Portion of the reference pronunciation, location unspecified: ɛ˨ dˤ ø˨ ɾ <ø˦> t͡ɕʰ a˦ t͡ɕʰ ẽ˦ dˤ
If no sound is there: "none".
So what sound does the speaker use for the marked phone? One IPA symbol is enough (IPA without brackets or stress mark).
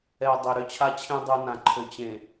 ø˦